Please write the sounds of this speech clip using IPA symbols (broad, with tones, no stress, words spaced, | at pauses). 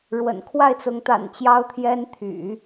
ɻwə̰˨˩n kʰwa˥˩ɪ̯t͡sʊ˧˥ŋ t̪a̰˨˩n t͡ɕjɑ˥ʊ̯t̪ʰjɛ˥n t̪ʰy̰˨˩˦